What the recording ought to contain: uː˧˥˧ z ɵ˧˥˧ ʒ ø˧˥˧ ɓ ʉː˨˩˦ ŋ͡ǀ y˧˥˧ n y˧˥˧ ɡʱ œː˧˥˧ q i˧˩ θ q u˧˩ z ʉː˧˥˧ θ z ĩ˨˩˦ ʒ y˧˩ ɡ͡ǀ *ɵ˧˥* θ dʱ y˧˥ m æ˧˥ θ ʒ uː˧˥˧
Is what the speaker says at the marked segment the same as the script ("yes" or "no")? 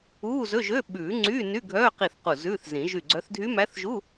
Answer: no